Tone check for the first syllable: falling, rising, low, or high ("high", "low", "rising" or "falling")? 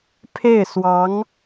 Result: falling